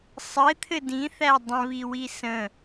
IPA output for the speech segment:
sˤ ɘ t̪ʰ ɘ d ĩ θ æ dˤ ə̃ β i w i s ə̃

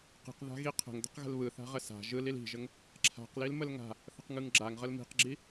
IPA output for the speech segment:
q i̤ q ð a̤ ɣ i qʰ ə̤ ŋ d ə̤ q ɣ ə̤ l β ɯ θ a̤ ʁ ə s a̤ ʒ ɯ l i l i̤ ʒ ə ŋ | ǁʰ a̤ q l i l m ə l ŋ a̤ | θ ə̤ q ŋ ɯ ŋ ɡ͡ǁ a ŋ ʁ ə l m i̤ q ɡ͡ǁ i

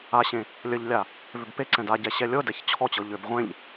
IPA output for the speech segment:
a ɕ ẽ | lʲ ə ʎ lʲ a | v ʏ b p e ǀ ɛ̃ d a ɟ ɛ ɕ ɛ lʲ ɤ d ɛ ç t͡ɕʰ ɔ t͡ɕ ɤ ʎ ʏ b ʁʷ ẽ ʎ

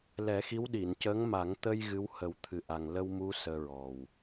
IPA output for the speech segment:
l ɛ˨˩˦ x i˧˥ w ɗ i˨˩˨ n c əː˧˥ ŋ m a˨˩˦ ŋ t̪ ə˧ j ɣ ɨ˧˥ w h ə˨˩˦ w t̪ʰ ɨ˨˩ ʔ a˨˩ ŋ l ə˧ w m u˧˥ s əː˧ ɹ ɔ˨˩ w

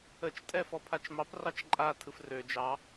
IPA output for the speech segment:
ə t͡ʃ tʼ ɛ f ɔ pʰ a t͡ʃ m ɑ p r ɑ t͡ʃ ǃʼ a tʰ ɯ f r ø d͡ʒ ɑ

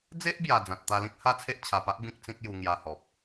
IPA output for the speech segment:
d͡z e˦ ʔ b j a˨˩ d͡z ã˨ t̚ t̪ a˧ l ĩ˦ k̚ h a˦ t͡sʰ e˦ ʔ t͡ɕʰ a˨˩ p a˦ ʔ b ĩ˦ k̚ t͡s ĩ˦ k̚ j u˧ ŋ j a˧ h ɔ˨ p̚

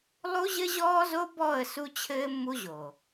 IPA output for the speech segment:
lˠ u˦ ʑ ɘ˦ ʑ ɔː˦ z o˦ b ɔ˦˨ ə̯ s u˦ t͡ɕʰ ɘː˦ mː u˦ ʑ o˨

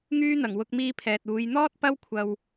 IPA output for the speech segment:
ŋ yː˧ n̪ ɐ˨˩ ŋ w ʊ˧ k̚ m iː˧ pʰ ɛː˨ t̚ uː˨˧ j n̪ ɔː˥ t̚ p ɐ˥ w kʷʰ ɐ˧ w

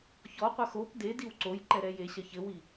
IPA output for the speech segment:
ç ɔ qʷ ɐ x o p d e d i w ǀ o j ǃ ɛ ɾ ɛ j e ɕ ɐ ç ɘ w i

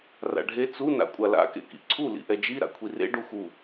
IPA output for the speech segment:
r a̰ ɖʱ e t͡s u n a̰ kʷʼ a l a̰ k ḛ k ḭ ǀʰ u l ḭ ʔ ɛ d͡ʒ i ɾ a̰ kʷʰ i r ḛ ɖ u x u

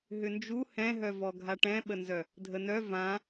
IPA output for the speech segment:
ɦ ʏ n d͡ʒ u h ɛ̃ ɦ œ v ɔ ɡʱ a ʈ ɛ̃ ɓ ə n z œ | dʱ ə n œ v ã

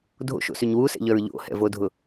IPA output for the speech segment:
dʱ o̰ ʃ o̰ s y ɲ w u s ɛ̰ ʎ œ ɹ ʎ o̰ h ɛ̰ v o dʱ ʊ

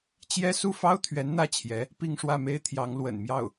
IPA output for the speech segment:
t͡ɕ j ɛ˥ s u˥˩ f ɑ˥ ʊ̯ t̪ʰ ɥ ɛ˧˥ n n̪ ä˥˩ t͡ɕʰ j ɛ˧˥ | p i˥˧ ŋ ʂ w ä˥˩ m e˥ ɪ̯ t̪ʰ j ɑ˧˥ ŋ l w ə̰˨˩ n m j ɑ˥˩ ʊ̯

